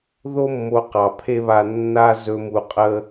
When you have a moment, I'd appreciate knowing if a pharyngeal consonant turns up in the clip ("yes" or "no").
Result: no